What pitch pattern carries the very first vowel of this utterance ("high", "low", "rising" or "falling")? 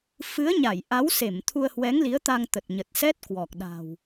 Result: rising